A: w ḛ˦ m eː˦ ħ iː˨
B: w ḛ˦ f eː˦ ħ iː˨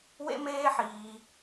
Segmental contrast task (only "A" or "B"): A